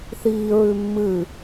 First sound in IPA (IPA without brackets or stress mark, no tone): θ